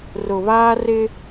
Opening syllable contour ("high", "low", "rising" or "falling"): low